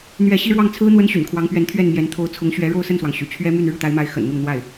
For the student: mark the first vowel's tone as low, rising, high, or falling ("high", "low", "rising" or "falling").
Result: falling